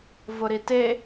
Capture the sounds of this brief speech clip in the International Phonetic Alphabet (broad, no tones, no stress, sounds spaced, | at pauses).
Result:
v ʊ ɾ i t e